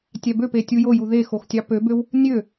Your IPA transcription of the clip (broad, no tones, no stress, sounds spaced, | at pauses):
tʲ æ b ø p e tʲ u j o j u ð e x o x tʲ ɑ p ø b ø w | nʲ ø